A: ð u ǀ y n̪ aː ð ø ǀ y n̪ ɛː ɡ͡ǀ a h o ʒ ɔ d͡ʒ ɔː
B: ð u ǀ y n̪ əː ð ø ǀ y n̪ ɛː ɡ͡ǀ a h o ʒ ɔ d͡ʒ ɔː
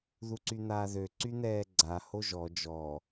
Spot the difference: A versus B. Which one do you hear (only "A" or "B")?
A